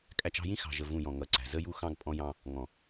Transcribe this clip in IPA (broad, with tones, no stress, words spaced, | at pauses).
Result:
kʼæ˨t͡ʃɑ̤˦˨jĩ˦ xɑ̤˨ʒə˨ vũ˦˨jɔ̃˨ŋʌ˨˦ǀæ̤˨ zə˦ju˦ xɑ̃˦ɡpʼɔ̃˦jɑ̃˦ | ŋɔ̃˨